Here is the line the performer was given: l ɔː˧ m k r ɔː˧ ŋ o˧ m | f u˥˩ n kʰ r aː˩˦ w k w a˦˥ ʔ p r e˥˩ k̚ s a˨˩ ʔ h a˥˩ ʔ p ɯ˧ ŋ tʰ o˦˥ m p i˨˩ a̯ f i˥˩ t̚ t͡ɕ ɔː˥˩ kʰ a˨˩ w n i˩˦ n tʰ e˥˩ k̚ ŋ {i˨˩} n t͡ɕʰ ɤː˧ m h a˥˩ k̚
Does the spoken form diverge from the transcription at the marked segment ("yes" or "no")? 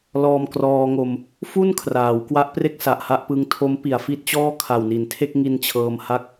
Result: yes